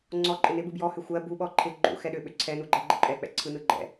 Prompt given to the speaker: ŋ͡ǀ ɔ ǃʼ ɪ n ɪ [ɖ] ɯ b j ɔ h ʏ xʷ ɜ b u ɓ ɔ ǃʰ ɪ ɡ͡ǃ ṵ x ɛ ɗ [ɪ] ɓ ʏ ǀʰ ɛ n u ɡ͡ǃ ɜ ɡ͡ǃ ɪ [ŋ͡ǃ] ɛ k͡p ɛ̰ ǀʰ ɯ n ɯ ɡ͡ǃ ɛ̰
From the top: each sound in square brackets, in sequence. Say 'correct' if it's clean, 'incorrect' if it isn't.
incorrect, incorrect, incorrect

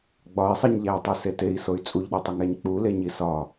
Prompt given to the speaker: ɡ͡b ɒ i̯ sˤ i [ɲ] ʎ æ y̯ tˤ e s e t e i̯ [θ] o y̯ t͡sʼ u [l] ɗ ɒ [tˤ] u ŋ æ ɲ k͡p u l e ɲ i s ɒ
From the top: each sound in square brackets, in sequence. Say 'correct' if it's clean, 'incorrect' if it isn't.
correct, incorrect, incorrect, correct

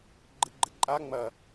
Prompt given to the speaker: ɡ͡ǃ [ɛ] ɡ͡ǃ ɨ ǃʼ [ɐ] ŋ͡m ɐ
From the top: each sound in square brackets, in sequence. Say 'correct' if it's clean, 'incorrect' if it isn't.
incorrect, incorrect

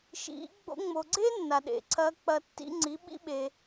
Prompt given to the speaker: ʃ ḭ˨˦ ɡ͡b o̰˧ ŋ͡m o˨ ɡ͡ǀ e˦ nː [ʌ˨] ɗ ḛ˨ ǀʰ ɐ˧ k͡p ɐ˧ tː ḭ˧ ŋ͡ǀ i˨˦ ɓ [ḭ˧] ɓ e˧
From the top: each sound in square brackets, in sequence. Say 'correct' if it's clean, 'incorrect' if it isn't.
incorrect, incorrect

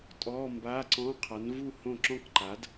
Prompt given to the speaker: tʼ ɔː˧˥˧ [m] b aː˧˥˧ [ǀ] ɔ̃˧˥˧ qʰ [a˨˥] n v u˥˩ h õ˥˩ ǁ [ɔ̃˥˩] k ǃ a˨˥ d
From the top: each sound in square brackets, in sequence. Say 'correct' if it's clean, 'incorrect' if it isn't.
correct, correct, correct, correct

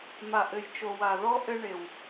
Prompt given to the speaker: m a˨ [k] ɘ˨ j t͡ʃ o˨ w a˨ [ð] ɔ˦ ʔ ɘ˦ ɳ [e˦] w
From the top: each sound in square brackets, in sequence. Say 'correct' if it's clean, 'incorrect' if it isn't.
incorrect, correct, incorrect

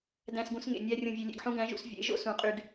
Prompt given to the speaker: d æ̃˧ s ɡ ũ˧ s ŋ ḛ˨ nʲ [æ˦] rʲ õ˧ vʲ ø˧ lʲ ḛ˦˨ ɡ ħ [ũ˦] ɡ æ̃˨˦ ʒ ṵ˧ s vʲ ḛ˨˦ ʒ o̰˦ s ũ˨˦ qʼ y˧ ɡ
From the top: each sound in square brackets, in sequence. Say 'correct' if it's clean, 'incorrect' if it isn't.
correct, correct

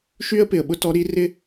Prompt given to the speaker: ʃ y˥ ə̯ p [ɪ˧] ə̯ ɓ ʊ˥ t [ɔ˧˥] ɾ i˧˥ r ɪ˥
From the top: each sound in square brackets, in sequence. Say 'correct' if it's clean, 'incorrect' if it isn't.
correct, correct

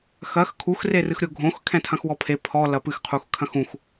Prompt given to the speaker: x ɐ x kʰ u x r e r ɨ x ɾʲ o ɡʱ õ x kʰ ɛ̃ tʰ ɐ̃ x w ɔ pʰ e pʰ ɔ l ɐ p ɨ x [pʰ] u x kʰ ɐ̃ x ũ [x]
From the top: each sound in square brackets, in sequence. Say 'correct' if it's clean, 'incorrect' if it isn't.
incorrect, correct

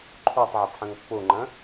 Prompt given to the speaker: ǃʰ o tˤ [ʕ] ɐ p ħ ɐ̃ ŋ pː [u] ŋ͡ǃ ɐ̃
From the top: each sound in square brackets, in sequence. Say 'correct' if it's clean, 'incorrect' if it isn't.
correct, incorrect

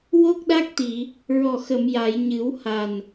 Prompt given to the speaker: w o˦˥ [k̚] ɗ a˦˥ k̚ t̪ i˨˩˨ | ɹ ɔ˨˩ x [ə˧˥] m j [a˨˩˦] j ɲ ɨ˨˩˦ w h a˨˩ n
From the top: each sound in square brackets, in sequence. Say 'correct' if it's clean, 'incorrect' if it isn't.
correct, incorrect, incorrect

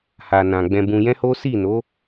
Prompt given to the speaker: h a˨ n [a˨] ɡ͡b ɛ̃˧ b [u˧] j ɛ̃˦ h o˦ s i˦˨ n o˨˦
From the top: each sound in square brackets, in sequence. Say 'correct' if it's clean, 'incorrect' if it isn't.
incorrect, incorrect

